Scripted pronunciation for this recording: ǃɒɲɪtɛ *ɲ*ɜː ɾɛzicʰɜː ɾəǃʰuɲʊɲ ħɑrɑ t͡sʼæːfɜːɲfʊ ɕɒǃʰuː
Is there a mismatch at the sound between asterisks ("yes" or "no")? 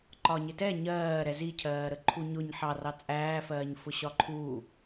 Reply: no